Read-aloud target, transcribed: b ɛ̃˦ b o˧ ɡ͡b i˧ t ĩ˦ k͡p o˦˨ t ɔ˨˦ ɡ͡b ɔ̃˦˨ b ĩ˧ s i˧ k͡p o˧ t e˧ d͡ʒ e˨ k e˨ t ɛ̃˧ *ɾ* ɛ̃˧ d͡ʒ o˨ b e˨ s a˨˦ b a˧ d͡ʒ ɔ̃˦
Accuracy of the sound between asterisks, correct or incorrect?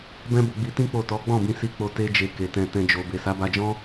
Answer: incorrect